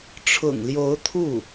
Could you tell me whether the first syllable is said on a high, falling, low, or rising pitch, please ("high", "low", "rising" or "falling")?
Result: low